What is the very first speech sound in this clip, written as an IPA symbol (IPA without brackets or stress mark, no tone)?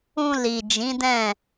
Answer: ũ